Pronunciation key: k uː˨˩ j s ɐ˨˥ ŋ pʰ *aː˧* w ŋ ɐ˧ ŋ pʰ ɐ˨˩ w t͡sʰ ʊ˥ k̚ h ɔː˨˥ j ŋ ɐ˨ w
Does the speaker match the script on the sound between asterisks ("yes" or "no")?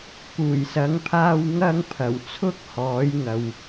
yes